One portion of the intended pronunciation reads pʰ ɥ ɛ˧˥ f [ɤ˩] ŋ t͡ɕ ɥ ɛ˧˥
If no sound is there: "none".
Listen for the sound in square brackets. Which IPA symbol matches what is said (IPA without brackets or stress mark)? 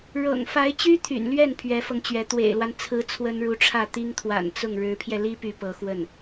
ɤ˧